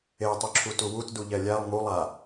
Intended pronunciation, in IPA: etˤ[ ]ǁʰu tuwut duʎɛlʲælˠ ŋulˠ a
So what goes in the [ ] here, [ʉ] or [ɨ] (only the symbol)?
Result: ʉ